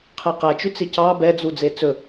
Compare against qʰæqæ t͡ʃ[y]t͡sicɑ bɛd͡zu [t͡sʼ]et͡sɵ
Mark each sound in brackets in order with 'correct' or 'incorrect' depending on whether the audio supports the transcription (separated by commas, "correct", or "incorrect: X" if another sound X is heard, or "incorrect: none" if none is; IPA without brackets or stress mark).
correct, incorrect: d͡z